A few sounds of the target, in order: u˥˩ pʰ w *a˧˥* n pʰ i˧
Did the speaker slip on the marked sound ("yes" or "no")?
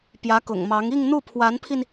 no